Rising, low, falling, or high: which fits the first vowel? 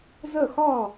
falling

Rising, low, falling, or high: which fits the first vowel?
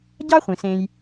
high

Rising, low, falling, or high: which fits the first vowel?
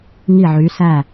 falling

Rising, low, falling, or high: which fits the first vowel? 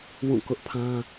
falling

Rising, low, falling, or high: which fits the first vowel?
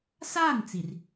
falling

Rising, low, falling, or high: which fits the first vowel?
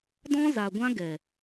high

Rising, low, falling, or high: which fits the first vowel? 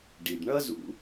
low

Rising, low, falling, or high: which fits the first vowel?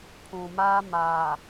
low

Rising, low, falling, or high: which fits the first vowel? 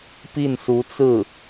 falling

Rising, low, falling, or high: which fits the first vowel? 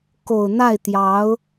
low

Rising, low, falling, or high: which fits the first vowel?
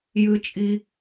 high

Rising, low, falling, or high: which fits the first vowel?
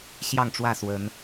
falling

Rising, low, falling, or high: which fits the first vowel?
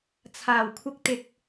low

